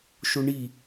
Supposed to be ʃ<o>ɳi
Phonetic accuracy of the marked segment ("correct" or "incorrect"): correct